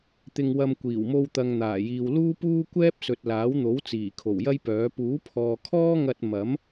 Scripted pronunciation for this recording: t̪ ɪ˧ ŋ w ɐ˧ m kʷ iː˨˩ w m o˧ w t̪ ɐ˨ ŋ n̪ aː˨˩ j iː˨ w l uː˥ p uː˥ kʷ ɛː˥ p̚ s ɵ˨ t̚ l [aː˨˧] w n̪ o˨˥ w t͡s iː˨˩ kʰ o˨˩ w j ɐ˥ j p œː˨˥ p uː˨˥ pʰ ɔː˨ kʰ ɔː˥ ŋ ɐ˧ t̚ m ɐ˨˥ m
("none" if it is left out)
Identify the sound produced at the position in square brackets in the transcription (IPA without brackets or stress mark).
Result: aː˨˥